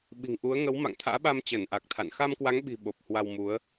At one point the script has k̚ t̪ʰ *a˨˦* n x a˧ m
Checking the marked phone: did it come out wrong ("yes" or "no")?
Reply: yes